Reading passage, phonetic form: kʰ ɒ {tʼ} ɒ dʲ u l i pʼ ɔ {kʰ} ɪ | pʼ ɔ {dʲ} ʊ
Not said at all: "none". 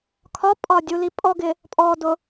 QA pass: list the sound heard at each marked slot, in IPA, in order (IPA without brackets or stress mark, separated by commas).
pʼ, ɡ, d